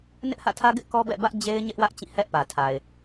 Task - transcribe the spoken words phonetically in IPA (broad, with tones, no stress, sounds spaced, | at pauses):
n ɪ˦ ʔ h ä̰˦˨ tʰ ä˦ ɡ ɪ˦ ʔ k ɔ˦ b ɛ̰˦˨ b ä˦ ʔ d͡ʑ e˦ ɪ̯ ɲ ɪ˦ ʔ w ä˦ ʔ t͡ɕ ĩ˦˨ h ɛ˦ ʔ p ä˨ tʰ a˨ ɪ̯